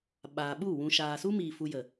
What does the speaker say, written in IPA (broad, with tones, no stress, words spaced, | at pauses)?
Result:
ɓaː˨ɓu˦˨ wũ˨ ʃaː˨su˦miː˨ fu˧jə˨